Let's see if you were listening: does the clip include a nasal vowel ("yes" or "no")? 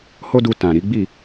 yes